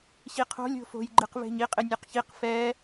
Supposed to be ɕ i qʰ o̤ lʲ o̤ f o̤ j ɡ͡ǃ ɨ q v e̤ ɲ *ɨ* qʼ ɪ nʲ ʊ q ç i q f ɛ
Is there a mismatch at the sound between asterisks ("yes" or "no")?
yes